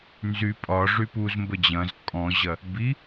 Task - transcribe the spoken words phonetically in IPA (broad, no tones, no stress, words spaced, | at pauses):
nzy pʼɒ ʐypuzmbə d͡ʑɐ̃z kʼɔ̃ʑɐ | bi